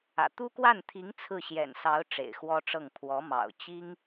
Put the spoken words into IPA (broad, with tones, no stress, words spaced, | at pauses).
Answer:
ä̰˨˩ t̪u˥kwa˥˩nt̪ʰi˧˥ŋ t͡sʰɹ̩˥˩ɕjɛ̰˨˩nsɑ˧˥ʊ̯ ʈ͡ʂḛ˨˩ɪ̯xwɔ˥ʈ͡ʂɤ˥˩ŋ pʰwɔ˧˥mɑ̰˨˩ʊ̯ t͡ɕi˥ŋ